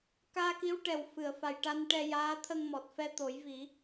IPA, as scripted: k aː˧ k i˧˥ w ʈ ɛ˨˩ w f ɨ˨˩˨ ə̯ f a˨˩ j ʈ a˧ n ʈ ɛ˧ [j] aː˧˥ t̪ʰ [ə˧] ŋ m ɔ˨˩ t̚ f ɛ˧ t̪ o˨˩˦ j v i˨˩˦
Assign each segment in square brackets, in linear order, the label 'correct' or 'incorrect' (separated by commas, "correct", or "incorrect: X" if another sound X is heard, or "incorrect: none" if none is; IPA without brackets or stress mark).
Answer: correct, correct